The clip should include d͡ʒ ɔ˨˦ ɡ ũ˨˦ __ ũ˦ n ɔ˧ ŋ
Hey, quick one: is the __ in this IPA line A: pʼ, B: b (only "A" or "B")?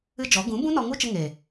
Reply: B